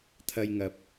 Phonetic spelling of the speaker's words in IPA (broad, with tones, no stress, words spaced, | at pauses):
t̪ʰɐ˧jŋɐ˨p̚